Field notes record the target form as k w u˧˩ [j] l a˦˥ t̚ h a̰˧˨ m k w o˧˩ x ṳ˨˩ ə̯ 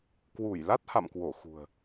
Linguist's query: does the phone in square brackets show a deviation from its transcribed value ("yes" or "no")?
no